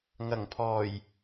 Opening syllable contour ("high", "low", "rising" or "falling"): low